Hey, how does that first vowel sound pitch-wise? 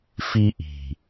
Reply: high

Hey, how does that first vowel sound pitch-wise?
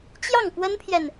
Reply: falling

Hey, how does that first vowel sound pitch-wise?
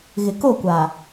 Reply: low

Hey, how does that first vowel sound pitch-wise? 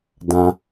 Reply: low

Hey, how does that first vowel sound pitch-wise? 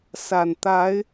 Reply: low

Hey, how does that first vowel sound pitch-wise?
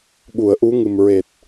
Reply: low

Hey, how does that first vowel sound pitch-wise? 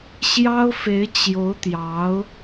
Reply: high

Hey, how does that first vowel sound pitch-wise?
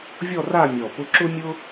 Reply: falling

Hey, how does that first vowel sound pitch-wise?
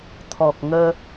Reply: low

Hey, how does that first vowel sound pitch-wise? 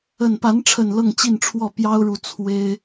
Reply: low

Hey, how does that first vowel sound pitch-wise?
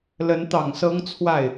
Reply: rising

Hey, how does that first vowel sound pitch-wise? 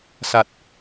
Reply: low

